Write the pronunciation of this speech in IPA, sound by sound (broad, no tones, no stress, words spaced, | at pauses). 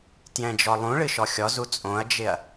tjɛ̃d͡ʒɔlˠũɭɨ ʃɔxʲɔzu t͡sʼõɐ̯d͡ʒɪɐ̯